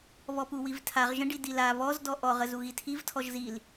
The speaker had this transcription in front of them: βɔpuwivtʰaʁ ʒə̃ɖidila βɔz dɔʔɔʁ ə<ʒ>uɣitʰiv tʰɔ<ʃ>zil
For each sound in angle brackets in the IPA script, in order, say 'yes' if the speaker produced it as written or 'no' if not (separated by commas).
no, no